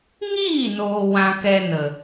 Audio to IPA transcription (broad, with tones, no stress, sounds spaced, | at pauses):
ŋ iː˦˨ n oː˨ w ã˧ k ɛ˧ n ə˨